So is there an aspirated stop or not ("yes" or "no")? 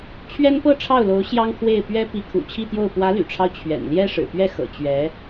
yes